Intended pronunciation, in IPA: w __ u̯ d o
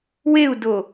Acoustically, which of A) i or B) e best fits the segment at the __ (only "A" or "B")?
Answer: B